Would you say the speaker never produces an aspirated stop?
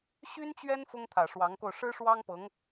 no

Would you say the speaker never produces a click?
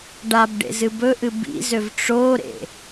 yes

